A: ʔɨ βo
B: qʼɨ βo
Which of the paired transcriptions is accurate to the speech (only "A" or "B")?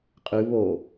B